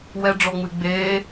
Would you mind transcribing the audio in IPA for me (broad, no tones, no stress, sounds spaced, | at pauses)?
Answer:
w ɛ ɖ͡ʐ ɔ ŋ͡m ɨ ɡ͡b eː